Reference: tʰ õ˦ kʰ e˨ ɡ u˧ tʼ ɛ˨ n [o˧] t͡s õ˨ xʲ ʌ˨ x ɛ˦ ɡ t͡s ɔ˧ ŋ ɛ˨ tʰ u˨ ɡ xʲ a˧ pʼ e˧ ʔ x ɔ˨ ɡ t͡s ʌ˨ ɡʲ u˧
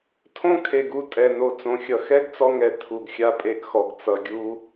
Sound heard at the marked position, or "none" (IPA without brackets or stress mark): o˨